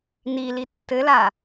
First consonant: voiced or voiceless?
voiced